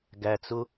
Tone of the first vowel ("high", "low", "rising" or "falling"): low